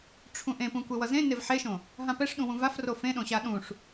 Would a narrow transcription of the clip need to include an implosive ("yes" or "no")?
yes